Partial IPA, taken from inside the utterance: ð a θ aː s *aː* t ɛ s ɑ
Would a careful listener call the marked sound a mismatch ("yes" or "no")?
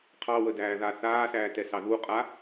yes